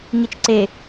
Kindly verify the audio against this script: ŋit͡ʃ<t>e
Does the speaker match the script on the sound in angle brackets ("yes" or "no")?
no